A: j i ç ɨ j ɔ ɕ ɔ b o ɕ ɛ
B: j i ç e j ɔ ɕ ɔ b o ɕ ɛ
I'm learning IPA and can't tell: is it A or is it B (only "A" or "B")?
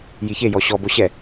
B